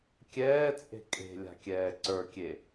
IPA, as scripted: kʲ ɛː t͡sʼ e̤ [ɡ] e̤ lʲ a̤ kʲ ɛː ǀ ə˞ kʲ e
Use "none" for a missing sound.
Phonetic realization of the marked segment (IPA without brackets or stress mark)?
kʼ